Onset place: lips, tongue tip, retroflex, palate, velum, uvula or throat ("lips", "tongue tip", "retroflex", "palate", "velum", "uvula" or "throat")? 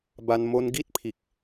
lips